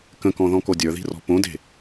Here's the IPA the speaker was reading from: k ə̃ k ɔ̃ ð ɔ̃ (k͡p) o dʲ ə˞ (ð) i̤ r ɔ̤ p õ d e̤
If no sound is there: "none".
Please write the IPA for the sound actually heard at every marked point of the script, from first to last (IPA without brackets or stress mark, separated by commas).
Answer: k, ð